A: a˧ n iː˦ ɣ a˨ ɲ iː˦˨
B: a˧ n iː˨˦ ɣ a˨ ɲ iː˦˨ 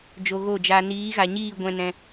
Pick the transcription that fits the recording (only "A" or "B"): B